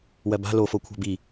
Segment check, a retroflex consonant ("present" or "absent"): absent